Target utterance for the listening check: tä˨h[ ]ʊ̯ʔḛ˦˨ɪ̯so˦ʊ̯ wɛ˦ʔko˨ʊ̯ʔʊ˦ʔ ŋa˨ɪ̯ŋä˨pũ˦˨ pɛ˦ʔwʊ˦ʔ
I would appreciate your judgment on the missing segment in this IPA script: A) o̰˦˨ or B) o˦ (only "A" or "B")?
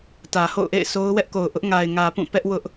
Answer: A